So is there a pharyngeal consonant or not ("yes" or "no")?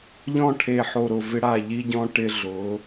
yes